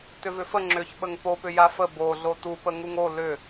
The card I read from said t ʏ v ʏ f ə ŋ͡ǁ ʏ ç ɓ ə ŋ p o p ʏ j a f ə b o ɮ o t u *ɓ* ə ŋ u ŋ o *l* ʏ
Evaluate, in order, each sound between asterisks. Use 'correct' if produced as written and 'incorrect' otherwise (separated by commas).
incorrect, correct